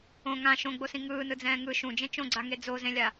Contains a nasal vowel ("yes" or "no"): yes